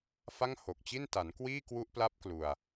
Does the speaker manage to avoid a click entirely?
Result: yes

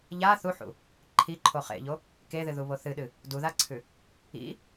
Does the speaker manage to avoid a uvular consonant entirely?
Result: no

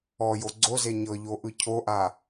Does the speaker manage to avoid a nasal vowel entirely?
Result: yes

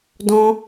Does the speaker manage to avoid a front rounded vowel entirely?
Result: yes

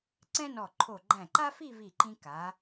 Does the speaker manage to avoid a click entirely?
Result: no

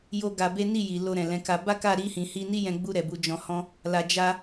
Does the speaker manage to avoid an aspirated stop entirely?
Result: yes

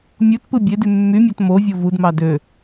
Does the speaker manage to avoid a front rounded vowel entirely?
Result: no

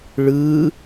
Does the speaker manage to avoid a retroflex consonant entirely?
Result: no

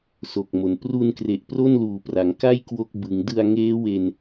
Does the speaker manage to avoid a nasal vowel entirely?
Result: yes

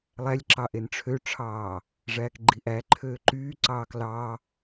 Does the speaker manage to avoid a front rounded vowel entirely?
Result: no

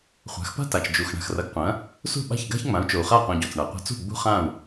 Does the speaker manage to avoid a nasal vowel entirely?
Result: no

